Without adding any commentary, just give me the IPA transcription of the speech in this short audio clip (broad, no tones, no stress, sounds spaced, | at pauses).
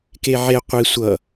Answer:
k e ʕ e qʷ i sʷ ʌ